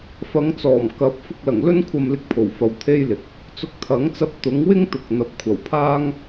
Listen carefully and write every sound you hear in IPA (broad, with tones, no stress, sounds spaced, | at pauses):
f ɐ˨˧ ŋ t͡s ɔː˨˩ m k ɐ˨˥ p̚ f ʊ˧ k̚ l ɐ˨˩ ŋ l ɵ˥ n kʷʰ ɐ˧ m l ɪ˧ k̚ pʰ o˨˩ w f ɐ˨ w t̪ʰ e˥ j l ɪ˨˥ k̚ | t͡s ʊ˧ k̚ t̪ʰ ɐ˨˥ ŋ t͡s ɐ˧ p̚ t̪ ʊ˨˥ ŋ w ɪ˥ ŋ t̪ ʊ˨˥ k̚ n̪ ɐ˨ p̚ kʷʰ ɐ˨˩ w pʰ aː˥ ŋ